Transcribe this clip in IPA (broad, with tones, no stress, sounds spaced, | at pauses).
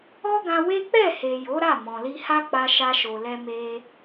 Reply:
ɔ˦ ɡ ã˧ w e˦ k͡p ɛ˦˨ h e˨ j o˨˦ ɾ a˦˨ m ɔ̃˨ l i˧ h a˦ k͡p a˧ ʃ a˧ ʃ o˨ l ɛ˧ m e˧